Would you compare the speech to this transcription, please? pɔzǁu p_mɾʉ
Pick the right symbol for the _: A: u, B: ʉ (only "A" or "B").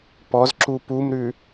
A